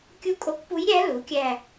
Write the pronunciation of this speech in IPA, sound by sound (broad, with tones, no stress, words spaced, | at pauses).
kʲu˦˨kʼo˧˥kpu˧˥jɾʲæ˧˥ lu˩˥kʲæ˦˨